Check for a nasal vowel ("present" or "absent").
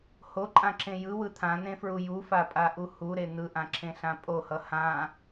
present